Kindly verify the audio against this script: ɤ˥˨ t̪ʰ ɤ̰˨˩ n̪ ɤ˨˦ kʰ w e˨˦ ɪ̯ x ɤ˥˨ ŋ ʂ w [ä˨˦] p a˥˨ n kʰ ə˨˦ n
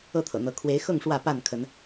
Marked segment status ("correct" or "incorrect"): incorrect